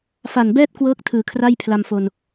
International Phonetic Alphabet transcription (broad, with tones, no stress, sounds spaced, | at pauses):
f a˨˩ n b ɛː˥˩ t̚ k w ɤː˦˥ k̚ tʰ ɯː˨˩ kʰ r a˥˩ j pʰ l a˧ m f o˧ n